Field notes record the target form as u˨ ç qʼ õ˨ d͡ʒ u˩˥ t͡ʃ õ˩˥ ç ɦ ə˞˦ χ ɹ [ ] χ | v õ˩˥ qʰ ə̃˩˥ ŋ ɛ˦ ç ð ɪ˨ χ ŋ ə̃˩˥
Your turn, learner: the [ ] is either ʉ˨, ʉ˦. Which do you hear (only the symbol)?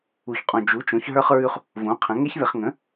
ʉ˦